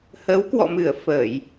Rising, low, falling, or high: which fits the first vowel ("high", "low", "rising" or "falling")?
rising